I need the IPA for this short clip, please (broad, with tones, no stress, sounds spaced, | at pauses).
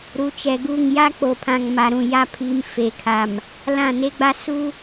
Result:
ɾ u˨˦ t͡ʃ ɛ˨ ɡ u˦˨ ŋ j a˦ k͡p o˨ pʰ ã˨ ŋ m a˨ ɾ ũ˨ j a˦ pʰ i˨˦ m f e˨ kʰ a˨ m | l ã˦˨ n e˦ ɡ͡b a˦ s u˦